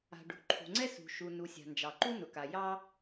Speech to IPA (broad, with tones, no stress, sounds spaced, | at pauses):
a̤˩ ɖ ṳ˩ ǃʰ ṳ˩ ŋ͡ǀ ɛ˥ s ṳ˩ ʃ u˩ n u˩ sʲ a̤˩ n d͡ʒ ɑ˩ ǃ u˥ n ʊ˩ k a˩ j ɑ˥